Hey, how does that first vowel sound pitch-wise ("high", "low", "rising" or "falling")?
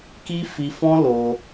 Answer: high